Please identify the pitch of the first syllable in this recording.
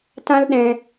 high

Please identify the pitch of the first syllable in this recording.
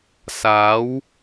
rising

